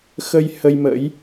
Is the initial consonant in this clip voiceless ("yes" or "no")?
yes